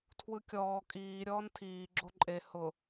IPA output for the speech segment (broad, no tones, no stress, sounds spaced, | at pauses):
tʰ w ɯ kʲ ɔː kʼ iː ɾʲ ɔː n tʰ iː ɡ͡ǁ o ǃʼ e h ʊ